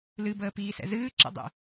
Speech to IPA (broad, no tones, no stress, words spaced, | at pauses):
lɨ bəːpiːsɛ̰zɨː ǁə̰dˤɛ̰